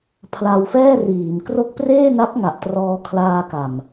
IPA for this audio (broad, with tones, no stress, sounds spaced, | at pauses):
pʰ l a˧ w f ɛː˥˩ r iː˩˦ m k r o˦˥ k̚ p r eː˥˩ n a˦˥ p̚ ŋ a˨˩ ʔ t r ɔː˧ kʰ l aː˧ k a˨˩ m